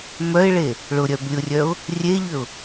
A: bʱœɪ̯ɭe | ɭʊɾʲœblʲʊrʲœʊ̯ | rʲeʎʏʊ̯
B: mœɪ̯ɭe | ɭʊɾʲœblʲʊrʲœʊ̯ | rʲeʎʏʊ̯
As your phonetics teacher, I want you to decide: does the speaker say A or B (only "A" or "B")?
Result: B